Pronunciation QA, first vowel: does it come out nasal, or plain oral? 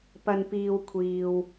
oral